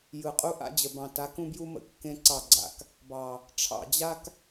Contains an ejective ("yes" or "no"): yes